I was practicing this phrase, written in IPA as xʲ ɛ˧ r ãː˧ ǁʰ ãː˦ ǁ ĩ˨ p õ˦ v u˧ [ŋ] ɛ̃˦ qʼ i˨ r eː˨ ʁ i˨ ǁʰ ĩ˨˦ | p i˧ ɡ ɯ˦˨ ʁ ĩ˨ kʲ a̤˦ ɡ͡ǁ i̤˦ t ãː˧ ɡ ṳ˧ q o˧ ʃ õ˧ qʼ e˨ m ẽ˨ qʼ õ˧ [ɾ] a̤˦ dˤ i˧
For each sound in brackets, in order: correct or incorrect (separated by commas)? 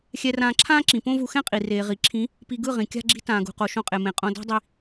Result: incorrect, incorrect